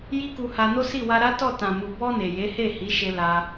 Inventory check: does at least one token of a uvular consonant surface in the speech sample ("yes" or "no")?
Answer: no